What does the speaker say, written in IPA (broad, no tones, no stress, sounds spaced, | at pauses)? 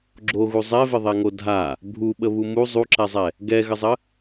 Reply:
ɡ͡ǁ o ɣ u zˤ ɛ v ɪ ðˤ ɛ ŋ o dʱ a | bʱ u ɓ ə β u m u zˤ u ǁ ɛ zˤ ɛ | ɡ ɛ ɣ ə zˤ ə